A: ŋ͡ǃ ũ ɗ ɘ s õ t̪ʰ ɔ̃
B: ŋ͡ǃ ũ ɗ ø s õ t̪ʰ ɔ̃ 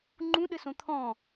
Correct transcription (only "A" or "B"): A